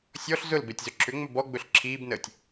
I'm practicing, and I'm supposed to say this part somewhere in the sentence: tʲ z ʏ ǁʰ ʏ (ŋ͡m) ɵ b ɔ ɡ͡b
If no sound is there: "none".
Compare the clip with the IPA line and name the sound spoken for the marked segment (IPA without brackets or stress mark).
ŋ͡m